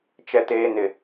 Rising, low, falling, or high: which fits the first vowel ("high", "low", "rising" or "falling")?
low